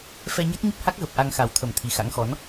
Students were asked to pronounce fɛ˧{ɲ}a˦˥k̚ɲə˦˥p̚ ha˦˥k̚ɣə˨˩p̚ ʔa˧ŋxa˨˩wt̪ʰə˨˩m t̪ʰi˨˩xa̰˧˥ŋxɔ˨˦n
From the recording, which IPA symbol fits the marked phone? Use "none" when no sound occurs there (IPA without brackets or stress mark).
ɲ